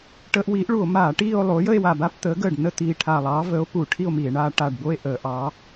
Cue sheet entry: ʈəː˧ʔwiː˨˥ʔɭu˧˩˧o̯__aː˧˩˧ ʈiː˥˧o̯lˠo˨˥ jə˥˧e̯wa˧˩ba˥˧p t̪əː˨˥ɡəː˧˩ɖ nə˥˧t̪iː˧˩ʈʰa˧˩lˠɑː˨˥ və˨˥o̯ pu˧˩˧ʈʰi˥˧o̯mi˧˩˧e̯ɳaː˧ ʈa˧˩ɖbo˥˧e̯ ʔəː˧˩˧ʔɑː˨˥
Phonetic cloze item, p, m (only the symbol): m